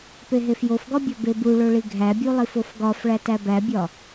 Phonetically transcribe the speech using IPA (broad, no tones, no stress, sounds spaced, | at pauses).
p e ɦ e f j o f ɡ ɒ bʲ ɒ b e b u ɭ o ɭ i ɡʱ æ bʲ u lˠ i f o f ɡ ɒ f ɭ æ t æ b æ bʲ ɒ